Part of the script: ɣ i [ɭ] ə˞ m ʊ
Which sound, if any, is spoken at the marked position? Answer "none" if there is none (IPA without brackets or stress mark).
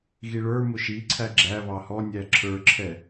ɭ